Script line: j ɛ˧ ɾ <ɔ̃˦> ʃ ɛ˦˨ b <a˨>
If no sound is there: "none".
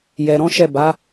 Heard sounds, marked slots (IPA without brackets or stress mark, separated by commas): ɔ̃˦, a˨˦